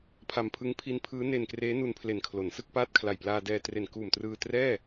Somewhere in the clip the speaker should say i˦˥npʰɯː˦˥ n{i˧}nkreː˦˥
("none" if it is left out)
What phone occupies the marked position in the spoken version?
e˧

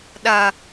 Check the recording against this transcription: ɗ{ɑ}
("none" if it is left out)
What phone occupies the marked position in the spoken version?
ɐ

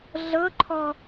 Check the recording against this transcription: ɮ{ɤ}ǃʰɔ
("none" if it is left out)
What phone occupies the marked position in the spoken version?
ɤ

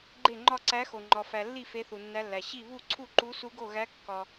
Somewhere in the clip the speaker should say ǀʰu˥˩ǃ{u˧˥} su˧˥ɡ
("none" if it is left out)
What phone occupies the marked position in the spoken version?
u˧˥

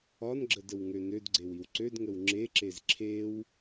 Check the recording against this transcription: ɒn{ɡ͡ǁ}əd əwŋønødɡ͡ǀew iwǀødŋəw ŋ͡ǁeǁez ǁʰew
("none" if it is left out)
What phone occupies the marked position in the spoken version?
ɡ͡ǁ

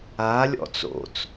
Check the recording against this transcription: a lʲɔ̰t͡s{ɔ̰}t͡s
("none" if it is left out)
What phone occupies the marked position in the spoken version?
o̰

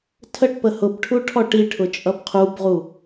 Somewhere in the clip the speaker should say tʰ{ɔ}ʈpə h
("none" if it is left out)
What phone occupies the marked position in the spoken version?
ə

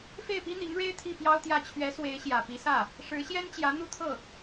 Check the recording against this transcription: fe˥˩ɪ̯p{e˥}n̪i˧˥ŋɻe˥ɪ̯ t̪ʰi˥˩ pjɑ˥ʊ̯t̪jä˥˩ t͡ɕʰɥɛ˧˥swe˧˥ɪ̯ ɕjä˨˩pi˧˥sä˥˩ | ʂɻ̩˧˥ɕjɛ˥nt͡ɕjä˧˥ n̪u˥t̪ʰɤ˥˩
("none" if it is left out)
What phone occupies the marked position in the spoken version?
i˥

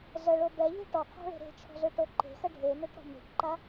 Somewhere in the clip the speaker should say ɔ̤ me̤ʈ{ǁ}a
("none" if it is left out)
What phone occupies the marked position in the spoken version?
ǃ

